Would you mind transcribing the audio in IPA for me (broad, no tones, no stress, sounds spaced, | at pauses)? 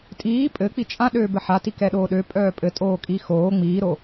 tʼ iː pʼ ɘ k͡p i t͡ʃʼ ã ɗ øː b ɘ ħ a t i k ɛ ɗ oː ɗ ø pʼ œː pʼ ɘ tʼ oː kʼ i x oː ŋ͡m iː ɾ o